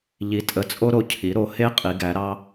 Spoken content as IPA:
ʎ i˩˧ tʼ ə˩˧ t͡sʼ o˧ ɾ o˩˧ cʰ i˩˧ ɾ o˩˧ h e˧˥ qʼ i˩˧ ɡ æ˩˧ ɾ ɑ˧

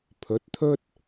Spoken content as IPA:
pʰ ɵ˨˥ t̚ t̪ʰ ɵ˥ t̚

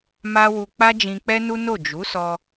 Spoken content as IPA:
m a˦ w u˧ k͡p a˦ d͡ʒ ĩ˧ k͡p ɛ˦ n u˦ n o˦˨ d͡ʒ u˨˦ s ɔ˧

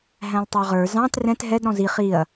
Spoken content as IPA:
ɦ æ̃ lˠ tˤ ɑ ʁ ə˞ z ɑ̃ t r ɛ̃ t ɦ ɛ d ɾ ɔ̃ z i χ i ɐ̯

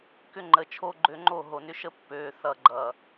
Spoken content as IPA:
k ʏ˦ ŋ͡ǃ ə˨ t͡ʃʰ o˦ ɡ͡ǃ ø˦ ŋ͡ǃ o˦˨ ɦ o˨ n ʏ˦ ʃ ə˦ pː ø˨ θ ʌ˨ ɡ͡ǃ ʌ˨

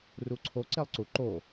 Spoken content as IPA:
r u ǀʰ o ǀ e lˠ ǀ u ǃ o

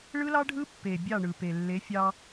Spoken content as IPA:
ɭ ɯ˦ l ɑ˦ ɖʱ ɯ˦ pː e˨ bʲ ɑ˦˨ ɳ ɯ˨ p e˨ lː e˨˦ fʲ ɑ˦

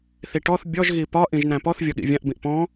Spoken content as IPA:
θ i ʈ ɔ θ bʲ ɔ ʒ ɣ i p ɒ ʔ ĩ ʒ n æ̃ p ɔ θ vʲ ɔ ɠ ḭ vʲ ã ʔ b ĩ ʔ p ɔ̃

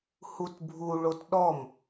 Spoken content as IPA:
h u t bʱ u ɭ o t ɗ ɔ m

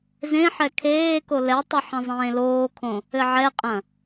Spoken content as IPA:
z ẽ ħ ɛ kʰ eː k o l ɛ tˤ ɘ ħ ɐ̃ zˤ ẽː l oː kʰ õ | ɘ ʕ ɛ qʼ ɐ̃

